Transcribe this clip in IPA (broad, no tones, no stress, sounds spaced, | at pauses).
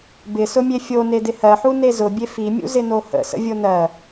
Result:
b ɪ s ʊ mʲ e fʲ o n e d ɪ h ɜ ħ u n e z ʊ bʲ e f i mʲ ṵ z ɪ n o h ə̰ s ə̰ vʲ o n ɜ